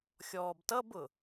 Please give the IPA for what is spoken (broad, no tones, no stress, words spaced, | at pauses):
xʲɔːbtʌbʊ